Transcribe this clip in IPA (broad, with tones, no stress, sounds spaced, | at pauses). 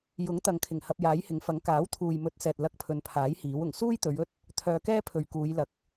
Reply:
j ʊ˨˥ ŋ t̪ ɐ˨ ŋ kʰ ɪ˨˩ ŋ h ɐ˧ p̚ j aː˨˥ j h ɪ˨˥ ŋ f ɐ˨˥ ŋ k aː˨˥ w t̪ʰ uː˨ j m ɵ˨˥ t̚ s ɛː˨ t̚ l ɐ˧ k̚ pʰ ɵ˨˧ n pʰ aː˨˥ j h iː˨˥ w ʊ˨˩ ŋ s uː˥ j t̪ ɵ˨˧ ɥ ɵ˥ t̚ | t̪ʰ œː˨ k ɛː˥ pʰ ɵ˨ ɥ k uː˨˧ j l ɐ˨ k̚